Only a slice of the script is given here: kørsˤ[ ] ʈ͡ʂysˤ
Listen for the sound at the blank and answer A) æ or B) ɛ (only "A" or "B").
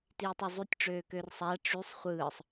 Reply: A